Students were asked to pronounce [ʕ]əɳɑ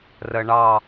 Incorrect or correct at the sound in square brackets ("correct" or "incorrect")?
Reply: incorrect